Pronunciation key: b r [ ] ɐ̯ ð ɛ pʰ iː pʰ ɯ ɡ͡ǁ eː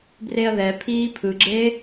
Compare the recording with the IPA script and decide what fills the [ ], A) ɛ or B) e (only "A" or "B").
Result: B